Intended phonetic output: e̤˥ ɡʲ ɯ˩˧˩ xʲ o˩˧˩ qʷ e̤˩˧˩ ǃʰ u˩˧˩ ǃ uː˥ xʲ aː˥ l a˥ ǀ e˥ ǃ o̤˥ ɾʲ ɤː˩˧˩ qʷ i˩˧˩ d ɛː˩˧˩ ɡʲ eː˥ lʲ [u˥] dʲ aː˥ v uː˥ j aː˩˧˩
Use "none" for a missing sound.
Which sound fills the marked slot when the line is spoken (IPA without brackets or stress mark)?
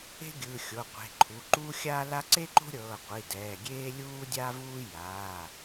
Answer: uː˥